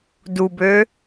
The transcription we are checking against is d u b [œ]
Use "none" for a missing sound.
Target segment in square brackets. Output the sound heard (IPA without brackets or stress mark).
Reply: ø